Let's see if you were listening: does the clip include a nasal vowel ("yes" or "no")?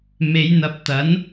no